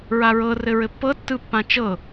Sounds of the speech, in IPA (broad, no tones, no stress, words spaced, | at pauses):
ɹaɹɤ rɘɹɘpːɤ tːɯpːãt͡ʃɤ